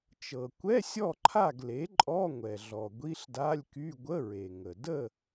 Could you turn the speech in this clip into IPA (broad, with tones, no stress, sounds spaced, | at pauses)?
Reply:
t͡ʃ ɤ˩ kʷ ɛ˧˥˧ sʲ ɔ˥˨ ǃʰ a˥˨ ɡ l e˩˥ ǃʼ ɔ˧˥˧ ŋʷ ɛ˩ ɮ ɔ˩ ɡʷ i˧˥˧ ɬ d a˧˥˧ lʲ k y˧˥˧ ɡʷ ə˧˥˧ ɹ e˩ ŋ ə˩ d ə˥˨